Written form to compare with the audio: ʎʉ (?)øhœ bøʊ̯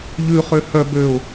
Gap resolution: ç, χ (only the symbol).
χ